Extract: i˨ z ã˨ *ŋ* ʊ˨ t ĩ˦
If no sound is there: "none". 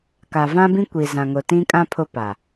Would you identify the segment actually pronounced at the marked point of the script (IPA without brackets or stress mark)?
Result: ŋ